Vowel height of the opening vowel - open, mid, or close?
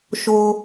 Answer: mid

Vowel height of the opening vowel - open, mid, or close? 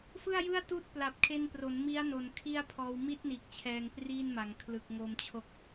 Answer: close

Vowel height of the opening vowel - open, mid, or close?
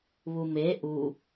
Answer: close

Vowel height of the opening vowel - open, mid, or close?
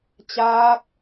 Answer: open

